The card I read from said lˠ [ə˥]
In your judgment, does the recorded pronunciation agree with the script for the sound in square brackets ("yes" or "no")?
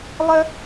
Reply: yes